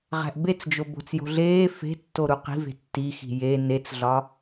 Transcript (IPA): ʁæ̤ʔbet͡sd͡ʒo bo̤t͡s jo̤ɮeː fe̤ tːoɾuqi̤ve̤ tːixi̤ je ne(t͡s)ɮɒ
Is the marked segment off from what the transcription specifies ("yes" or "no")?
no